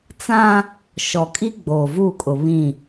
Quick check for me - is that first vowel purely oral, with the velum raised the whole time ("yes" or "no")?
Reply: no